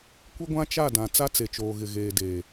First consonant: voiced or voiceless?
voiceless